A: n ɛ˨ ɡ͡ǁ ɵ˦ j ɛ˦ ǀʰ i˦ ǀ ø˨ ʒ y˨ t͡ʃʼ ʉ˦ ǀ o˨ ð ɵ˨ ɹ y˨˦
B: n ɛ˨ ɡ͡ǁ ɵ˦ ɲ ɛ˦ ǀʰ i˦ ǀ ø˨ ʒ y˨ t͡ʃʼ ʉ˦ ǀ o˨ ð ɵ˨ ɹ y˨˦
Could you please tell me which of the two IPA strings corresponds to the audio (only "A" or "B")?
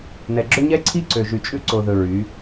B